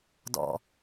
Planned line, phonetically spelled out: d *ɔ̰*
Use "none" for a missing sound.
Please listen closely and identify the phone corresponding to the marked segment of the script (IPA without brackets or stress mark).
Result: ɔ̰